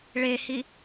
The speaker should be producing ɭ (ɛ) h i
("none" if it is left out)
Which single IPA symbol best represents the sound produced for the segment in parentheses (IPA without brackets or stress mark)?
e